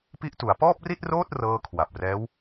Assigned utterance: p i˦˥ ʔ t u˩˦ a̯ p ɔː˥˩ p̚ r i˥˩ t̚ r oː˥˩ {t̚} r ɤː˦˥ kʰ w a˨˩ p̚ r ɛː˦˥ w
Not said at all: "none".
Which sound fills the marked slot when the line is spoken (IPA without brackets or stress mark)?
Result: t̚